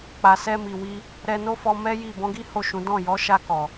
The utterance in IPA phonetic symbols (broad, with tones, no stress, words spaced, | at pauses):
k͡pa˨sɛ˧mi˨wi˧ | ɾɛ˧no˦fɔ˧ mɛ˦ji˦˨ bɔ̃˨˦ɡi˦ ho˦˨ʃũ˨˦ dɔ̃˦˨ jɔ˨˦ʃa˧kɔ˨